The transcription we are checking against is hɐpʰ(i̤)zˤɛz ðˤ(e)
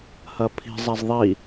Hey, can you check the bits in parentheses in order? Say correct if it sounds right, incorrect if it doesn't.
correct, incorrect: i

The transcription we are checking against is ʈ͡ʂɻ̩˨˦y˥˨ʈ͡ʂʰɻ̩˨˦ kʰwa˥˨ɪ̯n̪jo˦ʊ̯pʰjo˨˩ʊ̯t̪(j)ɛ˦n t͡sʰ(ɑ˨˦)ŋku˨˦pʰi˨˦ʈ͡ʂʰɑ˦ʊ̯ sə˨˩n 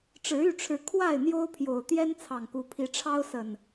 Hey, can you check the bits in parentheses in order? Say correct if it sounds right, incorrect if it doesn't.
correct, incorrect: ɑ˨˩

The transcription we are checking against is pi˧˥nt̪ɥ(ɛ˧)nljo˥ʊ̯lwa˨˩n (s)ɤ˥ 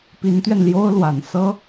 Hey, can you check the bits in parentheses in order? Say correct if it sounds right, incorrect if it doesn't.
correct, correct

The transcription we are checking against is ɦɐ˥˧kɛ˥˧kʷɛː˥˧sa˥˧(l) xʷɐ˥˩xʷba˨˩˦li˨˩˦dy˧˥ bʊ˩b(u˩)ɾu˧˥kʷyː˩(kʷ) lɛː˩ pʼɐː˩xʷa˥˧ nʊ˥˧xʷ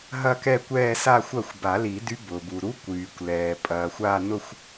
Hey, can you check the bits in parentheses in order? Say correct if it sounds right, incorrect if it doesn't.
incorrect: none, correct, correct

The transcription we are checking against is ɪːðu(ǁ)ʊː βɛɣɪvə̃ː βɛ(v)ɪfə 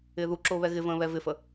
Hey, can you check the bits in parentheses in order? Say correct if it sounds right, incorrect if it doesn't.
correct, correct

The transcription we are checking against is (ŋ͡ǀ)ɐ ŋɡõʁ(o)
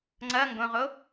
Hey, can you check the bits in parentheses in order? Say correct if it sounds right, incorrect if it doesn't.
correct, correct

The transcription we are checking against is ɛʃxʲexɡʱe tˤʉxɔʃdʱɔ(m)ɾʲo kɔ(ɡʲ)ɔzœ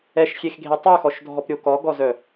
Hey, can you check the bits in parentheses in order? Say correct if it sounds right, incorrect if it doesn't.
incorrect: p, incorrect: ɡ

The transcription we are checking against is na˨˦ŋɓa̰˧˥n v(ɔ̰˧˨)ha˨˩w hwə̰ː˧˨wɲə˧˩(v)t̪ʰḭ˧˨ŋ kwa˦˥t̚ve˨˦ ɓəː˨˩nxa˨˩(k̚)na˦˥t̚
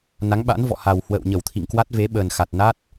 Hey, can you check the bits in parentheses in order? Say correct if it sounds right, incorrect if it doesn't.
correct, incorrect: w, incorrect: t̚

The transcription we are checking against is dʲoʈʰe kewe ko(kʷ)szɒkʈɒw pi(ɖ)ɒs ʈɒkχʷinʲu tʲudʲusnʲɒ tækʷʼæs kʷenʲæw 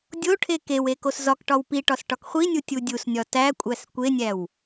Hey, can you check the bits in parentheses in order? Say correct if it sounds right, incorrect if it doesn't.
incorrect: none, incorrect: ʈ

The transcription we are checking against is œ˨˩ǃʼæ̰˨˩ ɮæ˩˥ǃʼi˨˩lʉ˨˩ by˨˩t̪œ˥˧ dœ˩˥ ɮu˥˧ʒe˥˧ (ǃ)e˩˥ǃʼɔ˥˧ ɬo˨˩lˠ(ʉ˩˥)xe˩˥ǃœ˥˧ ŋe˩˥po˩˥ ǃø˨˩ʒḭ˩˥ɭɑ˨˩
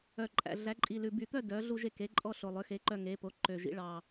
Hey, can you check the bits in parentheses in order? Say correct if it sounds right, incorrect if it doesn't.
incorrect: k, incorrect: ø˩˥

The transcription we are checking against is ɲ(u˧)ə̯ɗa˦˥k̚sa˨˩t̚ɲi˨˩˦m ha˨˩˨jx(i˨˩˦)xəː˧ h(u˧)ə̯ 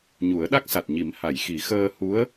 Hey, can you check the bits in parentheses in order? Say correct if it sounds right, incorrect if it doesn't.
incorrect: u˨˩˦, correct, incorrect: u˧˥

